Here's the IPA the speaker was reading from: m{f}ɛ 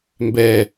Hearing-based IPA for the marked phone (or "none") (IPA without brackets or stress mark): b